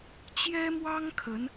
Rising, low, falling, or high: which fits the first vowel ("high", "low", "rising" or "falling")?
high